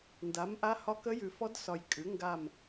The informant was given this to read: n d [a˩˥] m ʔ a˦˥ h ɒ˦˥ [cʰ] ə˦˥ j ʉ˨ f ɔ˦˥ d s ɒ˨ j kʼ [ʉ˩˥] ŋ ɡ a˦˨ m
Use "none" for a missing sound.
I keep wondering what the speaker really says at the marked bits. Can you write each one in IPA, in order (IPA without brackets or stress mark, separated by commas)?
a˩˥, k, ʉ˩˥